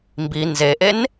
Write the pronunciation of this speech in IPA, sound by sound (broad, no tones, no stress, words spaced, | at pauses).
mbi nzeʔen